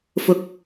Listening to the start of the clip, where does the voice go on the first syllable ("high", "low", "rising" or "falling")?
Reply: low